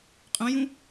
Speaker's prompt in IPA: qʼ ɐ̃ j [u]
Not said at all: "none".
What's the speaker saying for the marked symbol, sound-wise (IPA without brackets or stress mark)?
ũ